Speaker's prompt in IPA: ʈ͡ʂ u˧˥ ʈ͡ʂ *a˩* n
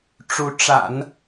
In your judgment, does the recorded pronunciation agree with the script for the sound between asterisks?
no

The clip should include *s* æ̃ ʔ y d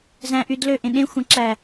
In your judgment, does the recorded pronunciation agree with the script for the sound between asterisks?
no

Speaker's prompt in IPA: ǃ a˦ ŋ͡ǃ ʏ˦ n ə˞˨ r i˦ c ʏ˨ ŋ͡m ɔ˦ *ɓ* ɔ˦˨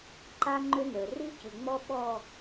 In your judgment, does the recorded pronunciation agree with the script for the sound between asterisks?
yes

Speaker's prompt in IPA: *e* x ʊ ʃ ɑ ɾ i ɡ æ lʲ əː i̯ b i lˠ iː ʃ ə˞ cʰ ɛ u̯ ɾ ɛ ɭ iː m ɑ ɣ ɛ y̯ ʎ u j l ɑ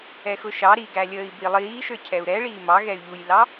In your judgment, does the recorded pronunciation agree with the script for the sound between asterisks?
no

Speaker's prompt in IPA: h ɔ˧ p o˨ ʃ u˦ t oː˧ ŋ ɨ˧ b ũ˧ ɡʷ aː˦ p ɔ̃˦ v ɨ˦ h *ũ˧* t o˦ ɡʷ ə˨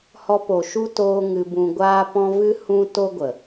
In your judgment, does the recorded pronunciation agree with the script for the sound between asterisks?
no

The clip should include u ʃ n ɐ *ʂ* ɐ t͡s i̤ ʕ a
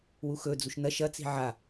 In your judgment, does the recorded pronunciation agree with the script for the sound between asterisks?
no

